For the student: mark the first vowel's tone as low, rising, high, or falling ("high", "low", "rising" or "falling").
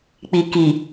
low